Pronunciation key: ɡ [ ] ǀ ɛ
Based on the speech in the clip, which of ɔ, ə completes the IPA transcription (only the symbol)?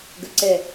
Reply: ə